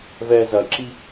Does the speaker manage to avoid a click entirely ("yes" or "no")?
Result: no